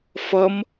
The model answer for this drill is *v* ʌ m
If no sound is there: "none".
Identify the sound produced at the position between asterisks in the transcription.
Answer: f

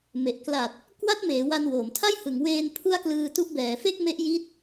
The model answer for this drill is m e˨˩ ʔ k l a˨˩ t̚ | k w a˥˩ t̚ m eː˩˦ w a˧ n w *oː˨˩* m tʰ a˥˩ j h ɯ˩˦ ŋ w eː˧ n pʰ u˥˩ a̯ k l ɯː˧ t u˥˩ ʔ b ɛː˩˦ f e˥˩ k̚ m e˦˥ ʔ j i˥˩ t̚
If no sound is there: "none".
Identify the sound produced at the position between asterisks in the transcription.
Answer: oː˩˦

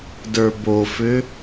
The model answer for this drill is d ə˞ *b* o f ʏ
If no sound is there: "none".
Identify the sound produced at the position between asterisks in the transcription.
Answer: b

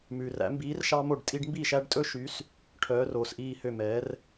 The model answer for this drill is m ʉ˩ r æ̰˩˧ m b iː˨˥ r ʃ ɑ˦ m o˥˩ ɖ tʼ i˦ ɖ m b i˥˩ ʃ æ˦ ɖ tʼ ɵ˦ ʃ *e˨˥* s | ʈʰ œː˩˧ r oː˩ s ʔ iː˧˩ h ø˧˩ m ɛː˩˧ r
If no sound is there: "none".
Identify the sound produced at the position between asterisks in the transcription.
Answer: y˨˥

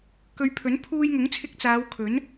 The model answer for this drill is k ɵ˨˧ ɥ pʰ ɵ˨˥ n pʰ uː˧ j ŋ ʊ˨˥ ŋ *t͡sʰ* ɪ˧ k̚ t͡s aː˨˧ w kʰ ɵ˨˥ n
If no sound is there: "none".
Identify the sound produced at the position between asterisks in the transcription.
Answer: t͡sʰ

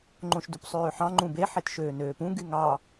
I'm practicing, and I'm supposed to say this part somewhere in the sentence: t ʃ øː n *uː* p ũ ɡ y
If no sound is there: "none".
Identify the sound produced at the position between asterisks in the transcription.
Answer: øː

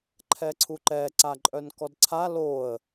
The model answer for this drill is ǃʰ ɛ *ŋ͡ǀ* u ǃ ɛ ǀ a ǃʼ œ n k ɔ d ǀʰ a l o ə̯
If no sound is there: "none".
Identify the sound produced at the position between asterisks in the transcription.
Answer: ǀʰ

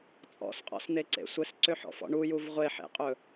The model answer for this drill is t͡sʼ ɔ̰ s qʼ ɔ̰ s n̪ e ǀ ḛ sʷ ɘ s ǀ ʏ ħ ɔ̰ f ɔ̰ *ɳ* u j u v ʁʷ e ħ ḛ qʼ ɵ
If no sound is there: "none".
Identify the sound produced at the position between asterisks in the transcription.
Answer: ɳ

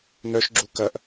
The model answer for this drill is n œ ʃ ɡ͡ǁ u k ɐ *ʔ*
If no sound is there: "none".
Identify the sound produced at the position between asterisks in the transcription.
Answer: ʔ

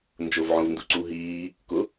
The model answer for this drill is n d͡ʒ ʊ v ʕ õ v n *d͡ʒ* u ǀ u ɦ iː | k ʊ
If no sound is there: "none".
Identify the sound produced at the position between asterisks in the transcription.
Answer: d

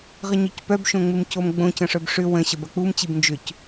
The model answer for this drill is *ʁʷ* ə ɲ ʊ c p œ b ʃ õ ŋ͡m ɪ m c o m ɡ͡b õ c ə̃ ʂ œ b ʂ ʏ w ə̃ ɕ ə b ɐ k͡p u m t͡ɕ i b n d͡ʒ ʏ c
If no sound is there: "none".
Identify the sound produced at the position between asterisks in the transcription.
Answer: ʁ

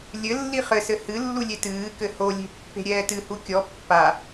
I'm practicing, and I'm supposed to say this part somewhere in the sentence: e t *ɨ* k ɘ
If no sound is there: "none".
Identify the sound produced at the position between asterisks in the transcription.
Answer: ɨː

